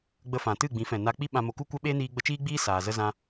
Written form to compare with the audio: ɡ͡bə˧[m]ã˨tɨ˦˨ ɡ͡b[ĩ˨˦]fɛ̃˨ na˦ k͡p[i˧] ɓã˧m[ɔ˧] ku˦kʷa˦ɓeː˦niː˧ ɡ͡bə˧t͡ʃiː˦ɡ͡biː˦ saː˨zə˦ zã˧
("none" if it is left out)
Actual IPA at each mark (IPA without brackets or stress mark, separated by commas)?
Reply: f, ĩ˨˦, i˦, o˧